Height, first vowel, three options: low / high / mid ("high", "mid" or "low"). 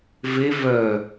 mid